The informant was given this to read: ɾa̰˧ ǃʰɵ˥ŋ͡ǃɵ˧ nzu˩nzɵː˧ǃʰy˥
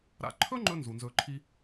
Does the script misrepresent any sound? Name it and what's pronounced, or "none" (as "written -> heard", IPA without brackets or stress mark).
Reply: y˥ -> i˥